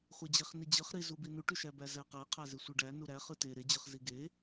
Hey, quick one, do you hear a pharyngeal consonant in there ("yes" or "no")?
no